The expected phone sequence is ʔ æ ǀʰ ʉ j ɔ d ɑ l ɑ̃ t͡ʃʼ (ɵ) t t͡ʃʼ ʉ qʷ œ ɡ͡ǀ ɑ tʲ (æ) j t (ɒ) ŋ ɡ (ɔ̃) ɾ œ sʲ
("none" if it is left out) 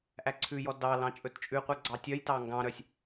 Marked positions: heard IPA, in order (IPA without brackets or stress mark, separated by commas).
ɵ, œ, ɑ, ɑ̃